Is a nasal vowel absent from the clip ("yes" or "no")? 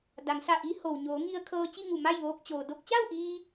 yes